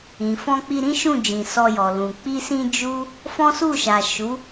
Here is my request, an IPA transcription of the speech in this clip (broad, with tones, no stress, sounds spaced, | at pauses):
ĩ˨ f ɔ̃˧ k͡p i˧ ɾ ĩ˦ ʃ ũ˦˨ d͡ʒ ĩ˨ s ɔ˧ j ɔ˨ l ũ˨ k͡p i˧ s ĩ˧ d͡ʒ u˦ | f ɔ̃˦ s u˦˨ ʃ a˨ ʃ u˨˦